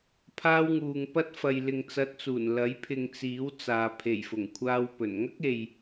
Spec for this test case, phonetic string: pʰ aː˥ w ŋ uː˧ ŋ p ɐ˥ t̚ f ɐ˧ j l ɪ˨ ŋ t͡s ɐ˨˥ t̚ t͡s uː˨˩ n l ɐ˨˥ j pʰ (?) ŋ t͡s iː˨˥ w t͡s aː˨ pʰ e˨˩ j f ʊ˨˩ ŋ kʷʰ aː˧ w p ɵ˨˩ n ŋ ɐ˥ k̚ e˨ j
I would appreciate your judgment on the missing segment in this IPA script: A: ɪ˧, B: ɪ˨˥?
A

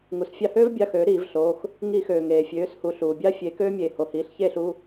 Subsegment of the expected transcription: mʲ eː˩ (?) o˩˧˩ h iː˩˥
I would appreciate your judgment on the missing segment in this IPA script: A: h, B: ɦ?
A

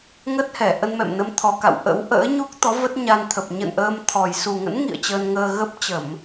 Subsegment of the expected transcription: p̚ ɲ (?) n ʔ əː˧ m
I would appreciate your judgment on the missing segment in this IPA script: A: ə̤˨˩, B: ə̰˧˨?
B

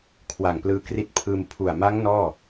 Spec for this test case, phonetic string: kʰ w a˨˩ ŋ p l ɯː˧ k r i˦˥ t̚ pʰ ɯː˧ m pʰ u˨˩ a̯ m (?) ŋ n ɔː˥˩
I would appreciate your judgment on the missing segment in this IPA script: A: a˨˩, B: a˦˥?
B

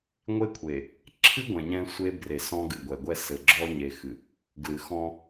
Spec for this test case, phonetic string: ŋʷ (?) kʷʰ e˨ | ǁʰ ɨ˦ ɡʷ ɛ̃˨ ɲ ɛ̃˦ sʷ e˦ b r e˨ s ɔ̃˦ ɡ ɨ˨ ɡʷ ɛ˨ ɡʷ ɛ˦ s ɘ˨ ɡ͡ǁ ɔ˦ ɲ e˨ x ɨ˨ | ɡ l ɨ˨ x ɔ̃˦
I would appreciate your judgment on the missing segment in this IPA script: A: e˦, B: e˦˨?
A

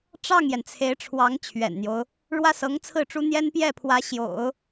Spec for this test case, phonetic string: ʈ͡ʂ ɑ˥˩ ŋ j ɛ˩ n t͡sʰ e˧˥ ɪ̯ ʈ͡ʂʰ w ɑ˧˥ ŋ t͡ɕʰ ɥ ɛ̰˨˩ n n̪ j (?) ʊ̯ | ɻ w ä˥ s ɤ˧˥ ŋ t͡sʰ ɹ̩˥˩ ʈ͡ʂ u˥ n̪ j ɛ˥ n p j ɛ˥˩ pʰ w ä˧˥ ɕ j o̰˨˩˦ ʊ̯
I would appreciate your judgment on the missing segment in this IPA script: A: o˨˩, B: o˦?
B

